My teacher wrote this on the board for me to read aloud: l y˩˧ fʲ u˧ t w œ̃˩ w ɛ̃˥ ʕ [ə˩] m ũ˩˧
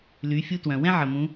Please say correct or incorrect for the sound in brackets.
correct